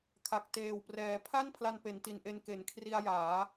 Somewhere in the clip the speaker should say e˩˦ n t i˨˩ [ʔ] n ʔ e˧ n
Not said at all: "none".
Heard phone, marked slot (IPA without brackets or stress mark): none